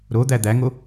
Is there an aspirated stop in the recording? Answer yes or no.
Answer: no